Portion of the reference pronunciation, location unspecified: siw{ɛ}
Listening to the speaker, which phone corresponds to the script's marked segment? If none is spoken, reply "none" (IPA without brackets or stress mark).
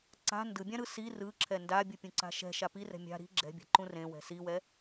ɛ